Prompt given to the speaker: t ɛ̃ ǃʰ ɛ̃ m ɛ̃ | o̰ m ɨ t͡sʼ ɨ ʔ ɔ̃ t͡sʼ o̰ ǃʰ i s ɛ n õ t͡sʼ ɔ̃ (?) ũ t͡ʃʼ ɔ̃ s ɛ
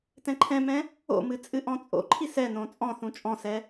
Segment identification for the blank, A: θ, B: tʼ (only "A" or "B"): A